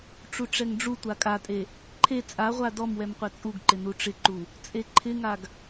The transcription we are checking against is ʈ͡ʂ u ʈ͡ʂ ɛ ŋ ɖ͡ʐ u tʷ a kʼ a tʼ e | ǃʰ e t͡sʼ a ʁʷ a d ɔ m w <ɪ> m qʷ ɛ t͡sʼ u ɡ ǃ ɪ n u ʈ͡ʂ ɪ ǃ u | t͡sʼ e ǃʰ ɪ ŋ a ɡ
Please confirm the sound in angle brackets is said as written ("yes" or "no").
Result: no